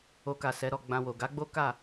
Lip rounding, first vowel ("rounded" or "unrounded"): rounded